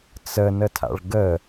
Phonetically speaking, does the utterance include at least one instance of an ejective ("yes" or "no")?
no